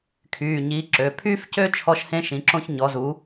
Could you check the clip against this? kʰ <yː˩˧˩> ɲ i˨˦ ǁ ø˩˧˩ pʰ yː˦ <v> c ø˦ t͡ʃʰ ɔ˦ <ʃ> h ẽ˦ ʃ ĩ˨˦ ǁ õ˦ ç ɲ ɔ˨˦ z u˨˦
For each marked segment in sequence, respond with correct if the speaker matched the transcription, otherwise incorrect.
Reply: correct, incorrect: f, correct

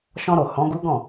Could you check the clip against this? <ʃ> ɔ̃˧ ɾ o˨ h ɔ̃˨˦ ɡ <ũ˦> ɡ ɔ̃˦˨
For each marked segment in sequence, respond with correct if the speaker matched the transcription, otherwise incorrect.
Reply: correct, incorrect: u˦

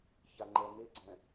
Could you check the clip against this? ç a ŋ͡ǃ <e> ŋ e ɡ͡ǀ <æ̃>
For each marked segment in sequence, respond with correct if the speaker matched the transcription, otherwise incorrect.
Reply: incorrect: ɛ, incorrect: ɛ̃

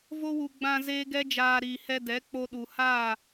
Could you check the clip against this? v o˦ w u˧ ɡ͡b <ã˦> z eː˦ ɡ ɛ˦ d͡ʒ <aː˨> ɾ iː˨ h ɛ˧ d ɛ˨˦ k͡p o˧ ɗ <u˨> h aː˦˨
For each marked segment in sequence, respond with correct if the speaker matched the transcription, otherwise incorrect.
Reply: incorrect: ã˧, incorrect: aː˧, correct

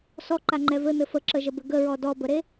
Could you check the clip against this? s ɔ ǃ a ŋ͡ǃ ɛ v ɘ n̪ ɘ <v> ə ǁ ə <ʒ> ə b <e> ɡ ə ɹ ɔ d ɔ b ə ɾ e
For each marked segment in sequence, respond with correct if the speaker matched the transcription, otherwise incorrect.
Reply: incorrect: f, correct, incorrect: ɘ

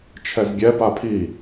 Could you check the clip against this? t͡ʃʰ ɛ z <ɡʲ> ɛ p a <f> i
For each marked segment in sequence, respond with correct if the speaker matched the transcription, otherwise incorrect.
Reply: correct, incorrect: pʰ

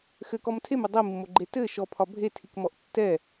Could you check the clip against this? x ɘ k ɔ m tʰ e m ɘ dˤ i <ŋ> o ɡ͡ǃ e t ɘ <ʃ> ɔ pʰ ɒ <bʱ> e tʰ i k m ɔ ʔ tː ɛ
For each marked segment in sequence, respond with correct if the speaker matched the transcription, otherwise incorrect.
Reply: incorrect: mː, correct, correct

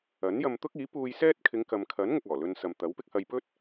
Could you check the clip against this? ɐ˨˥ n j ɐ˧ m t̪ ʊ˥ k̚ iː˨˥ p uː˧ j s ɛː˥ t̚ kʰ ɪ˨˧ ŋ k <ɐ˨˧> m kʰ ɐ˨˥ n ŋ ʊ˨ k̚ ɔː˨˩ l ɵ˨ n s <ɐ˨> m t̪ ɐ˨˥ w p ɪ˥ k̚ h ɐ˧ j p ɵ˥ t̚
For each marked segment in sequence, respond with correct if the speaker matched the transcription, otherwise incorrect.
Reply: incorrect: ɐ˨, correct

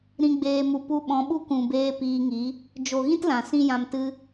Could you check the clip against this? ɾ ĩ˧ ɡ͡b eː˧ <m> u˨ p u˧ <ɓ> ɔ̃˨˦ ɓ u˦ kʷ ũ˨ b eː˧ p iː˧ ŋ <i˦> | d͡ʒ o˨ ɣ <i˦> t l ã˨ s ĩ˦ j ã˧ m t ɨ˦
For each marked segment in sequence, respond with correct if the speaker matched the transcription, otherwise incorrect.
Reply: correct, correct, incorrect: i˨˦, incorrect: ĩ˦

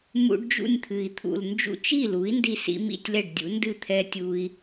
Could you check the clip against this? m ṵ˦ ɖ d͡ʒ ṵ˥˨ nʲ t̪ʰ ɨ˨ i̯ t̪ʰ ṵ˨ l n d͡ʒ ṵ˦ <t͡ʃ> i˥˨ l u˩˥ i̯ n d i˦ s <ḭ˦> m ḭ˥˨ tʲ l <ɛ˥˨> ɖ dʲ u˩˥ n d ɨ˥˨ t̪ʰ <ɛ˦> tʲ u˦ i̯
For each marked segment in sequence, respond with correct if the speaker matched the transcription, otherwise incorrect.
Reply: correct, correct, correct, correct

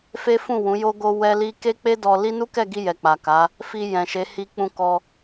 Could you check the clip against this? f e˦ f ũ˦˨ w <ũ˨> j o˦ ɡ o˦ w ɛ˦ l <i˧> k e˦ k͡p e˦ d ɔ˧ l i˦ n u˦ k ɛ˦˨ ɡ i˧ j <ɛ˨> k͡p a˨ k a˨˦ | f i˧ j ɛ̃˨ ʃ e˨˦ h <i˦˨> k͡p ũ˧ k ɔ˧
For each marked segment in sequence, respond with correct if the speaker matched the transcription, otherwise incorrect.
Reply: incorrect: ũ˨˦, incorrect: i˦, correct, incorrect: i˧

